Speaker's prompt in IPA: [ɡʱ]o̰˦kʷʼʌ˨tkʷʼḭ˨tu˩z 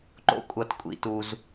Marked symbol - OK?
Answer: no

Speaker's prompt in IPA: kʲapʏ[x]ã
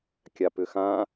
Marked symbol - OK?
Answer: yes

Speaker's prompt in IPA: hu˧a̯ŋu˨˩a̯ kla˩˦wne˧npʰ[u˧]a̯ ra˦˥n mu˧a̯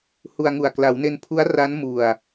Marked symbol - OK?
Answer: no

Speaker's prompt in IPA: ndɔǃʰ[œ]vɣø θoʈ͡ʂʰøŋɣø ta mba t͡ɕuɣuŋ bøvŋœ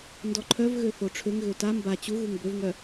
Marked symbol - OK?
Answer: yes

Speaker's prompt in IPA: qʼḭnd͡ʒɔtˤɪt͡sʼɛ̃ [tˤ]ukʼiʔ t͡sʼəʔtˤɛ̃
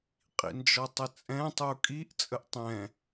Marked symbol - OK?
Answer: yes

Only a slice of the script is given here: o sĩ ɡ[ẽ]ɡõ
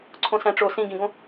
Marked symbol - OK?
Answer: no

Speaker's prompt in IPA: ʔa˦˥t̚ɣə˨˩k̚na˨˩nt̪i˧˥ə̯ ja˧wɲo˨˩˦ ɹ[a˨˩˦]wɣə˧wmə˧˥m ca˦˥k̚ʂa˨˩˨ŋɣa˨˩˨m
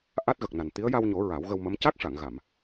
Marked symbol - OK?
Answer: yes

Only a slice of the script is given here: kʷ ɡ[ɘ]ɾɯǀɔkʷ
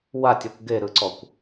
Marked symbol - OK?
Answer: no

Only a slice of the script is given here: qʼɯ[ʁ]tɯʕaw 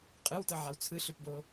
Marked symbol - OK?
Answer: no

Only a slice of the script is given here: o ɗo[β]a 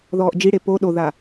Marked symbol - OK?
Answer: no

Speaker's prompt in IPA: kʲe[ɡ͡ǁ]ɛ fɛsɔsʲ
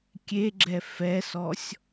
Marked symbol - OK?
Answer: yes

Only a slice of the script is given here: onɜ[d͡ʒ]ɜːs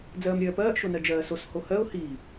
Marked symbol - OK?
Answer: yes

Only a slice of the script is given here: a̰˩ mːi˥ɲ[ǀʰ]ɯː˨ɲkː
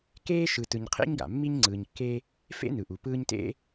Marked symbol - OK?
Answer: no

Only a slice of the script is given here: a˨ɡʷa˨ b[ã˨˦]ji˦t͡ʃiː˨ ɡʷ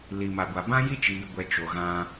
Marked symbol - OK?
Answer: no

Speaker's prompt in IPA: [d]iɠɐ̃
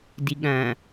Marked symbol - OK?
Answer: yes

